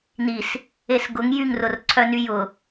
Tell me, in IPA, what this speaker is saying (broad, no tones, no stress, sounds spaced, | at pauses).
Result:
n i s | e s ɡ ʊ ŋ j y ŋ r ʊ r ǀʰ œ n y j ʊ